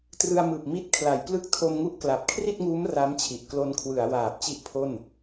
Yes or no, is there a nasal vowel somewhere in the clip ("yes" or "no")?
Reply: no